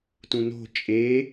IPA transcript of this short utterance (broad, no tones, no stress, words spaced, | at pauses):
tũno̤ t͡ʃʼe